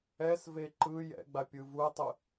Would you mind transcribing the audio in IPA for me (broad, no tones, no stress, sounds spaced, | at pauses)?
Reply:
ɛ s v e ǃ ɯ j ɛ̰ ɡ͡b a pʲ ɯ v u tˤ ɯ